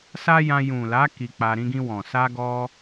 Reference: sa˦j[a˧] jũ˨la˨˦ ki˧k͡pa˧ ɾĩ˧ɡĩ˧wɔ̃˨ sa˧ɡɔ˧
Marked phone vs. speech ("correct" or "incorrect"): incorrect